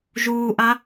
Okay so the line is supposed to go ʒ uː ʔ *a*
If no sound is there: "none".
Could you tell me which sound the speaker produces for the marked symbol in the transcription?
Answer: a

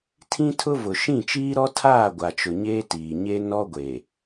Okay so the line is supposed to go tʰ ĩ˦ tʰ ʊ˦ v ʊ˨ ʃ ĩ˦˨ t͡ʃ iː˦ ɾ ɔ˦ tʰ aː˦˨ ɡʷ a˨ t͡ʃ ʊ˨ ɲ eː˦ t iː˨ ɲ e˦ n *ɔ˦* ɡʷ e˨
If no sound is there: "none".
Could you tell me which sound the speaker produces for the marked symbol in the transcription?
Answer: ɔ˦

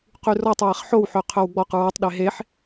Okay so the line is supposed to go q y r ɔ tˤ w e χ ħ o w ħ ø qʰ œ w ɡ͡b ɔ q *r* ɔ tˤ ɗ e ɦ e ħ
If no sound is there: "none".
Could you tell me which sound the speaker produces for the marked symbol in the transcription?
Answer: ɹ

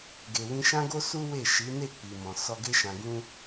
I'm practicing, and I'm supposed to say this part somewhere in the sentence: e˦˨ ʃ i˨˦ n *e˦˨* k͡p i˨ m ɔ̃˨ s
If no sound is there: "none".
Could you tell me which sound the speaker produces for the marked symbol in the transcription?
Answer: e˦˨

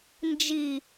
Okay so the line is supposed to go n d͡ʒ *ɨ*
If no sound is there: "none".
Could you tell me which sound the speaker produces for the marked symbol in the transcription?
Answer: i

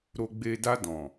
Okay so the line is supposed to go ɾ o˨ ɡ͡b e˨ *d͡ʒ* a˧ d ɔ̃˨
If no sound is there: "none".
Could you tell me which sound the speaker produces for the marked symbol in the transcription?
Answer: d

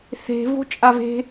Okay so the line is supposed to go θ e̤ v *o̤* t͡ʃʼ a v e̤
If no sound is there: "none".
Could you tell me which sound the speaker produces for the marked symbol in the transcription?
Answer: o̤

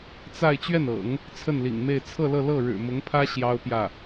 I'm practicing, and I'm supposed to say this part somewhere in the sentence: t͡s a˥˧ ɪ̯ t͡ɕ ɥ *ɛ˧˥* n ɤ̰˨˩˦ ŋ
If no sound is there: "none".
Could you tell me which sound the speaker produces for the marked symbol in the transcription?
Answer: ɛ˥˩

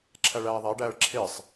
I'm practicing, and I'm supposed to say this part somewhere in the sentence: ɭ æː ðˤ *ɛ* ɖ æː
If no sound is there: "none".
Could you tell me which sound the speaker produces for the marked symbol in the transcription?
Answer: æ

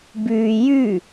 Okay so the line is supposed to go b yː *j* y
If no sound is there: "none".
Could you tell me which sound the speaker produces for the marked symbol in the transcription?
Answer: j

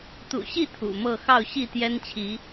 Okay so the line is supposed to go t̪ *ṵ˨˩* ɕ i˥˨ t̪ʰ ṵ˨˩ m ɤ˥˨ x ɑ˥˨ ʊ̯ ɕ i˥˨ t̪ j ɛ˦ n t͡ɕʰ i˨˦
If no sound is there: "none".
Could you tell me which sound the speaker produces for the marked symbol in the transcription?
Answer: ṵ˨˩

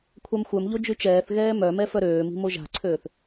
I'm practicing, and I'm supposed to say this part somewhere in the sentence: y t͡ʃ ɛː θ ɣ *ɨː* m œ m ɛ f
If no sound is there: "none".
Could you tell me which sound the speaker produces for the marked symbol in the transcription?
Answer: ɛː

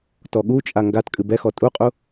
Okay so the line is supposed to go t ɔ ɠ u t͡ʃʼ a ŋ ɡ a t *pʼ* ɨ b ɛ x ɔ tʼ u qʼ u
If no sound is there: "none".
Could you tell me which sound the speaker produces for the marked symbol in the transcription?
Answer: kʼ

